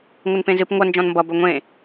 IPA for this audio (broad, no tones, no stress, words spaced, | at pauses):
ŋʷənpẽzɨp ŋʷʌ nd͡ʒɔ̃nmbʌ bɵŋʷẽ